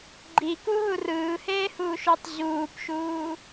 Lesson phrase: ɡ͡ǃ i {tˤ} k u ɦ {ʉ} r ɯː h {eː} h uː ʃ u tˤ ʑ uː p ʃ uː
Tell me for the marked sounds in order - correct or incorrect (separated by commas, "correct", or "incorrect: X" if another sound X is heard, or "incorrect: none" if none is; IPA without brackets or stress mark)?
incorrect: none, incorrect: u, correct